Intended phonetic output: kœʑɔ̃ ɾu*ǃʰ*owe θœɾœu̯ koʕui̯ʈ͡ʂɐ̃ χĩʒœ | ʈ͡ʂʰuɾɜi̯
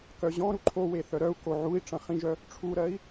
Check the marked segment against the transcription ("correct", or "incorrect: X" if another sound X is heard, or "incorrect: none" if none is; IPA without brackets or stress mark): correct